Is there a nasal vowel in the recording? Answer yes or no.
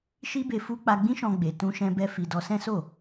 yes